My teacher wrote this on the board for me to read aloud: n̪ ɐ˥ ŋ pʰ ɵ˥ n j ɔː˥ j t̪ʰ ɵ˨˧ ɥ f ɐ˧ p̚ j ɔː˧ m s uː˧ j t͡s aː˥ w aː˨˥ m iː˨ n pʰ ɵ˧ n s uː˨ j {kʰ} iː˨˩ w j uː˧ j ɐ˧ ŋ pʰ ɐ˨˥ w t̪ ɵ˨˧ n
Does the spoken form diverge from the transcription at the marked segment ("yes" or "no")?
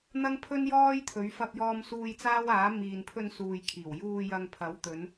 no